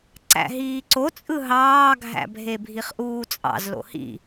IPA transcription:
ǀ æ̰ ɦ iː ǀ o t͡sʼ ɯ ɦ ɑː ɡʱ æ̰ bʱ e bʱ i χ ʔ uː t͡sʼ ɑ̰ z l o̰ h ḭ

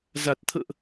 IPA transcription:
z a˨˩ t̚ t̪ʰ ə̰ː˧˨ ʔ

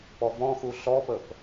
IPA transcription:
p ɔ v ɔ̃ x u ɬ ɔ p ə p

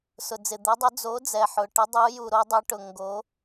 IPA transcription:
s ʊ˩ d͡z ɪ˩ d̪ ɛ˨˦ dˤ ʊ˨˦ d͡z o˨˦ d͡z ɛ˩ ħ ʊ˩ ʈ ɪ˨˦ dˤ u˨˦ j u˩ ɾ o˨˦ dˤ ɛ˨˦ ʈ ʊ˩ ŋ ɡ o˨˦

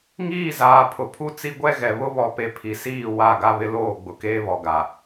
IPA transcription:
ŋ iː˦˨ z aː˨ pʰ ʊ˨ pʰ u˦ t͡s i˦ ɡʷ ɛ˦ ɣ ɛ˨ β ʊ˦ β ɔ˨ p e˨ pʰ i˨ s iː˦˨ w a˦˨ ɡ a˦ β ɪ˦ l oː˦˨ ɡ͡b ʊ˨ k eː˦ β ɔ˨ ɡ a˨

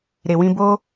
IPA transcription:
ɾ e˨ w ĩ˧ b o˦

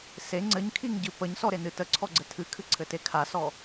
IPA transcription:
s e ŋ͡ǀ ɘ ɲ kʰ i ŋ ɟ ɨ p ə ɲ s ɔ ɾ e n ɨ t ə ǀʰ ɔ ɡ͡ǀ ɘ tʰ ɨ kʰ ɨ ǀʰ ɘ t e kʰ a s ɔ

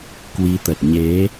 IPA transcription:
k w i˨˦ t̪ ə˨˩ t̚ ɲ e˨˦

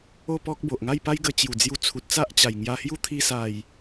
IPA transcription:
o˥˧ p ɔ˦ k̚ b o˨ ʔ ŋ a˥˧ j p a˦ j ɡ ə˧ t͡ɕ j u˨˩ d͡z j u˧ t͡sʰ u˨ t̚ t͡s a˦ ʔ t͡ɕ a˨˩ j ŋ j a˧ h j u˦ t̪ʰ i˧ s a˨˩ j

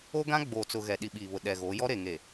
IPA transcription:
o˦ ɡ ã˦ ɡ͡b oː˨ t͡s ʊ˨ ɣ ɛ˨ ɗ i˨ ɓ iː˨ β ʊ˨ ɗ ɛ˨ ɣ oː˨˦ j ɔ˦ ɾ e˨ ŋ e˨

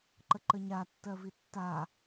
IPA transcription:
ǃ ə ǃ ə ɲ a tː ɜ v i tː a

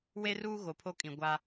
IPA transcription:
w e˦ r uː˦ ɣ o˨ pʰ o˦ kʼ ĩ˨ ɡʷ a˦

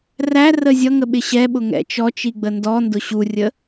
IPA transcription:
r æ r ə zʲ ʌ ŋ ə ɓ ɪ ɕ ɛ ɓ ʊ ŋ ɛ̰ t͡ʃ ɔ t͡ʃ i ɡ͡b ə n d ɔ n d ʊ ɕ u rʲ ə

